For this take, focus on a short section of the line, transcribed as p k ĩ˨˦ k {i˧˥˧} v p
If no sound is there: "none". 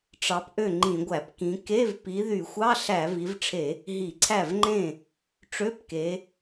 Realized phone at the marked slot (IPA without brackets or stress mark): e˧˥˧